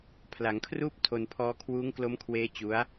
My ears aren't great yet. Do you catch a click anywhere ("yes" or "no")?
no